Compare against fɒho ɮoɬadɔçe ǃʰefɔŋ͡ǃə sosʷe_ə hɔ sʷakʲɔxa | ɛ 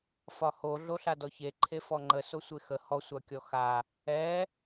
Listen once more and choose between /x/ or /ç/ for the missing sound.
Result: x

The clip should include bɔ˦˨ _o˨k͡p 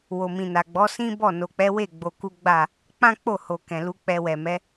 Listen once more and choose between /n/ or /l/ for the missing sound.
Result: n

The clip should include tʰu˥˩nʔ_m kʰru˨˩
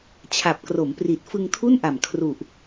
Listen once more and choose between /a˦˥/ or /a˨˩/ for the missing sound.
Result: a˨˩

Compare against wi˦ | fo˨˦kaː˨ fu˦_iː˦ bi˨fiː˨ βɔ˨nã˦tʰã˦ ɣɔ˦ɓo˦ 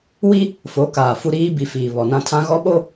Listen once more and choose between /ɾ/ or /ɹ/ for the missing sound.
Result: ɾ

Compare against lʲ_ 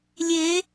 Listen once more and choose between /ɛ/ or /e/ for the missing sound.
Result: e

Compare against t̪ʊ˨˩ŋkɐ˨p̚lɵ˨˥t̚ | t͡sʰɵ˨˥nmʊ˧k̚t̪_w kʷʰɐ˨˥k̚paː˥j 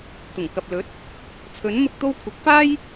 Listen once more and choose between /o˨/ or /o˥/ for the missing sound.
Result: o˥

